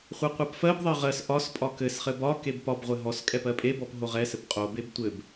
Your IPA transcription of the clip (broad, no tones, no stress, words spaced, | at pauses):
χʷɛqʷɜpfɜbðˤɜ ʁɜs ʔɒs pʼɒkɘsχɘ bɒ kebpɒbʁʷɘ ɦɔs kʼɛpɜpʼebɔp ɦoʁɛsɘp qʼobeb tʷɘb